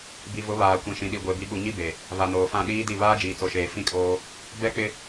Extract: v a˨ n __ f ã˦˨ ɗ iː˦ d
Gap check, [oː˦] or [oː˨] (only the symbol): oː˨